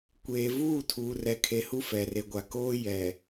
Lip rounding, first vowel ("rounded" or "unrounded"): unrounded